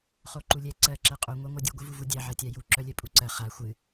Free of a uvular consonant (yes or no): no